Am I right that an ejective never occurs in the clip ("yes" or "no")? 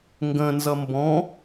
yes